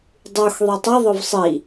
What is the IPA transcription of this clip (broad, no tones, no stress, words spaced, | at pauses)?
dˤux ðˤitˤɪ ðˤʊvsˤi